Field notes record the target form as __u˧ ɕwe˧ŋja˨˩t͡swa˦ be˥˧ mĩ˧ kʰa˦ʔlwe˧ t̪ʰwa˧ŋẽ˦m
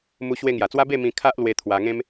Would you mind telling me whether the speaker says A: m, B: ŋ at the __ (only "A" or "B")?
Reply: A